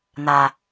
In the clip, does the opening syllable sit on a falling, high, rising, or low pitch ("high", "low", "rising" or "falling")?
low